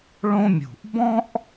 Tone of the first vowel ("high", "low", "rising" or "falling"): high